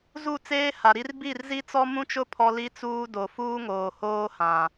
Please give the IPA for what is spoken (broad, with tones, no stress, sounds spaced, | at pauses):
z u˦˨ t͡s eː˦ h a˨ ɾ i˦ r b i˦˨ r z i˦ t͡s ɔ˦ m ũ˦ t͡ʃ ʊ˦ pʰ ɔ˦ l i˦ t͡s uː˦ d o˨ f uː˦ ŋ oː˨ h oː˦ h ã˨